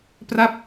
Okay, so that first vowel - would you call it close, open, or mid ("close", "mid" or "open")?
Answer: open